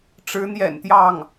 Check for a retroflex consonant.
present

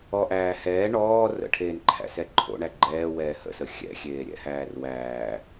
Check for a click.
present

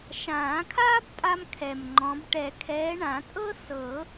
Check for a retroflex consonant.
present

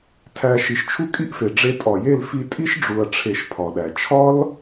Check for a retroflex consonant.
present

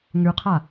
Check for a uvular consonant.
present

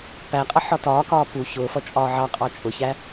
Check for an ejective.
present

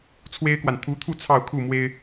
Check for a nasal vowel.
absent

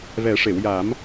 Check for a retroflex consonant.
present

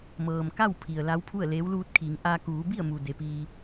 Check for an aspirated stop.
present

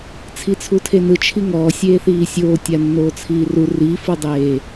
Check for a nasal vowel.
absent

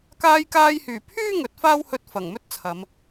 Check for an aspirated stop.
present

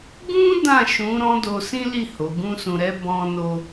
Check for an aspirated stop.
absent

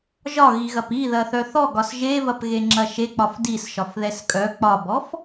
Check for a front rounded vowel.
present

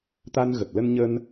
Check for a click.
absent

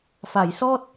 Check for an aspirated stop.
absent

